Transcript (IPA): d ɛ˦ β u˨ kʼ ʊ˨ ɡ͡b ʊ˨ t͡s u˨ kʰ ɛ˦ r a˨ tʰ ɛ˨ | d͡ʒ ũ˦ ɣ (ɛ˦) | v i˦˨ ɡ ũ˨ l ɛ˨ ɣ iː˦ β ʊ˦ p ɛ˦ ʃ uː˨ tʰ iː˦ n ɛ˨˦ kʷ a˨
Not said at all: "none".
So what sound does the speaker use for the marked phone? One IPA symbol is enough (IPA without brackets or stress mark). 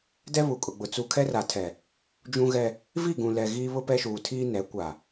ɛ˦